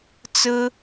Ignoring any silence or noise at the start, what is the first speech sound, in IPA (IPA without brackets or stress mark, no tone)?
t͡s